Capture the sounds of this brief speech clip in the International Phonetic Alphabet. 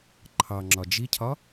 ǃʰɑŋ͡ǁɒ d͡ʒicʰɒ

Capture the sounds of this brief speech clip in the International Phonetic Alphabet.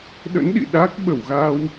ɗə̰˧˥nɗḭ˧˨ ɗa˦˥k̚ ɓə˧˩wɣa˧w

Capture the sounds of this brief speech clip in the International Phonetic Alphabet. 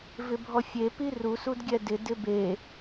vɪbʱɔfʲe pirus udɡʲɛdɪ dɪbe

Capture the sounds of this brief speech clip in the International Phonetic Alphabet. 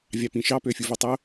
vʲɑpĩʃɑ pøfʲuvotˤo

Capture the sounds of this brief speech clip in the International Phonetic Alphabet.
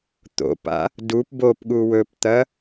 t̪o̰pa̰ | dup bopɠu wɵpt̪ɐ

